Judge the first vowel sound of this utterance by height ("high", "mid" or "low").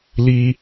high